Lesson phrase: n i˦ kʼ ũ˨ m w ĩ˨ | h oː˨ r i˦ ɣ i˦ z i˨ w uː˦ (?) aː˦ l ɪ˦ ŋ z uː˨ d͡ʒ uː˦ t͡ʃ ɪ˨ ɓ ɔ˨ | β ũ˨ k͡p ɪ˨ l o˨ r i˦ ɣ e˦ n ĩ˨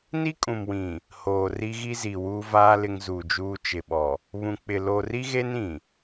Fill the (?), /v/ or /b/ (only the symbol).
v